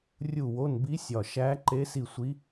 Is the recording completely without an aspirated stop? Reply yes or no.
yes